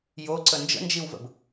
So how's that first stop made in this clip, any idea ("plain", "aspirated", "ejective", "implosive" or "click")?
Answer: click